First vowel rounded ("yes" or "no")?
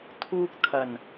yes